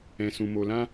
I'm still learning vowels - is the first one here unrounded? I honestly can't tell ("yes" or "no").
yes